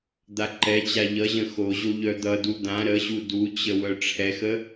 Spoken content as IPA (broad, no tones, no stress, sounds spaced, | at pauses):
d̪ a ǃ ɛ t͡ɕ a ʎ ʌ ʑ ə̃ x o ʑ o ʎ œ d̪ ʌ d u d̪ ã ɾ ə ʑ u d u t͡ɕ ə w œ ʈ͡ʂʰ ɛ x ə